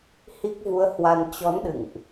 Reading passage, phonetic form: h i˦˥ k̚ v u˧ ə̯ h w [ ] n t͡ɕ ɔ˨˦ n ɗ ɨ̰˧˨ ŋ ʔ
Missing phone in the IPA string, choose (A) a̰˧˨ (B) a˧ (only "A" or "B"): B